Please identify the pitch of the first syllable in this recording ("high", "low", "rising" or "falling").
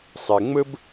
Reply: low